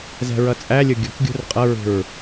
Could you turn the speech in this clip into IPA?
zɛ̤ɹʌt͡sʼælʲʊ ɡʲʊkɡʲṳr qʼʌɹṳɹ

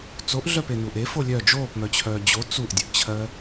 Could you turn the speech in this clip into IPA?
t͡soʔɮœpenuːʔ efo lʲœ d͡ʒoːpmœt͡ɕʰœː d͡ʑo t͡suʔdʲəʔt͡ɕʰɜ

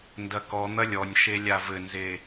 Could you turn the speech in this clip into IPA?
ndɐkɔn̪ɐ lʲɔnʲʃe lʲavɘnze

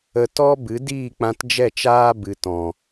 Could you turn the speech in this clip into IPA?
ə˧ tɔ˦ bɨ˨˦ diː˦˨k͡pã˧td͡ʒɛ˦˨t͡ʃaː˦ bɨ˨tɔ̃˨

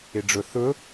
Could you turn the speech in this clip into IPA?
ɪɖ͡ʐʊ θʊ

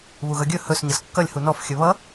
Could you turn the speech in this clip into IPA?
βuɣʌɡʲɵ hɵs ɲʌskːʌlʲ hunɔf xʲɵβʌ

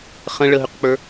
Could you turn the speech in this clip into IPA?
χə̃ ɭəɦʏqk͡pə˞

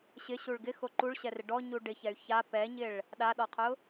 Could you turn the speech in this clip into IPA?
ɕɪɕuɭ ɡɪxo ǃuɭɕɛrɪ ɖɔɲu ɖɪçɛy̯ ça pɛɲɪɭ | ɗaɗɔqʰʊ

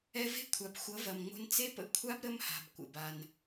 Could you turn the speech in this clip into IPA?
ɛ˧ve̤˦˥kʷʰa˩p xʷʌ˩˥vɐ˩mŋ͡mo̤˧n t͡se˦˥pə̰˧kʷʰa˦˥b ɾə˦˥mha̤˩bkʷə̰˩ba˩n

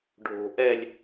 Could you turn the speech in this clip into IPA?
ɖʱo̤ ʔɛlʲ

